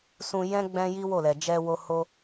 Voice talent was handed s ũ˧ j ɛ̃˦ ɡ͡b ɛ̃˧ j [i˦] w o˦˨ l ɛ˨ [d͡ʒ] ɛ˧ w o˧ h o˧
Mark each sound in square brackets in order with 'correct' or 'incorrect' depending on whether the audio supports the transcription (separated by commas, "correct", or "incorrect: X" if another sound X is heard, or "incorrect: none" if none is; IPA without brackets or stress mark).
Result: correct, correct